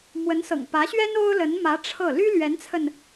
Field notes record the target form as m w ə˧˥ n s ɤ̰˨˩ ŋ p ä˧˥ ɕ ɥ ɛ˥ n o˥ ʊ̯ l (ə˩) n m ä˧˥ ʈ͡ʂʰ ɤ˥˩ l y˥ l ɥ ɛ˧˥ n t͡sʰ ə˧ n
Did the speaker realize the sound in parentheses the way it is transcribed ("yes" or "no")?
no